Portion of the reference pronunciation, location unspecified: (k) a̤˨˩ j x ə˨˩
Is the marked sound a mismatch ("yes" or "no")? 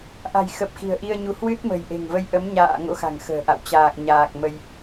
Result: yes